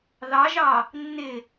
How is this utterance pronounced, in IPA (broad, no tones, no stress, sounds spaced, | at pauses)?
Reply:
ð ɑ ʒ ɑ | nː ɪ